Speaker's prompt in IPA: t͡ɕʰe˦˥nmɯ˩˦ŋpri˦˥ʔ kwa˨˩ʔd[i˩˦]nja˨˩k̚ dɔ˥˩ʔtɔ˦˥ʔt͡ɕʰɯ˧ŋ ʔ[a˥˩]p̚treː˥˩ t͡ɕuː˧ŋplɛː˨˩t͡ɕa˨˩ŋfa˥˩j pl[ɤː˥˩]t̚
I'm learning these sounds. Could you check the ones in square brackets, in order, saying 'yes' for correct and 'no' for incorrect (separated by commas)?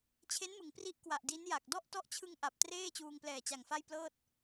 no, no, yes